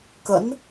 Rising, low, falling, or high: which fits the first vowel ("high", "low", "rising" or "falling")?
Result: rising